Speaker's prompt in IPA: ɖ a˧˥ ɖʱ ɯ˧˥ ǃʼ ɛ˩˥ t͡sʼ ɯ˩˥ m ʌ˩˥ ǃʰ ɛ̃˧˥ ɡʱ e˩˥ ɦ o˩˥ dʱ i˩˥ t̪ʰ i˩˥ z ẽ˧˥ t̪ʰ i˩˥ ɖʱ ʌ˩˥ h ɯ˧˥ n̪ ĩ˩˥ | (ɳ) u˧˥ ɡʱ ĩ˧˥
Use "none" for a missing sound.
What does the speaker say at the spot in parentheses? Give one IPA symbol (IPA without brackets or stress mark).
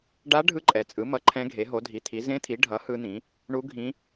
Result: ɳ